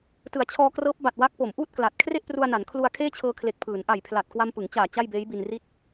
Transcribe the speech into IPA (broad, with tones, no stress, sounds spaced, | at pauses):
t ɯ˩˦ a̯ t͡ɕʰ ɔː˧ k r ɤː˦˥ p̚ b a˨˩ t̚ w a˦˥ k̚ p o˩˦ m ʔ uː˥˩ t̚ k l a˨˩ t̚ kʰ r e˥˩ ʔ p r u˧ a̯ n a˩˦ n kʰ l u˧ a̯ kʰ eː˥˩ t͡ɕʰ ɤː˧ kʰ l e˨˩ k̚ pʰ ɯː˩˦ n ʔ a˨˩ j pʰ l a˨˩ t̚ k w a˧ m p ɯ˩˦ ŋ t͡ɕ aː˨˩ t͡ɕ a˥˩ j b eː˦˥ j b i˧ n r i˥˩ t̚